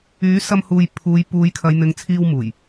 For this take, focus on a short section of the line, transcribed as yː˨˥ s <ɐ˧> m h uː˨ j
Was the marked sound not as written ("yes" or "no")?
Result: no